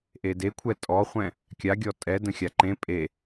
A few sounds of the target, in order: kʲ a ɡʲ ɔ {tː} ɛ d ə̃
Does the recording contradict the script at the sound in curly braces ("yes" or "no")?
yes